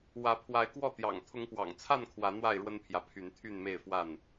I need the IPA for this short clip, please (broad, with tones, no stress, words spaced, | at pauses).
wä˨˦pʰwa˨˦ɪ̯kwɔ˥˨t̪jɑ̰˨˩ŋ t̪ʰʊ˨˦ŋpwɑ̰˨˩ŋt͡sʰa˥˨n kʰwä˨˦ n̪wa˥˨ɪ̯ɻwə˦npʰjä˨pʰy˨˦n t̪ʰy˥˨nme˥˨ɪ̯fwa˥˨n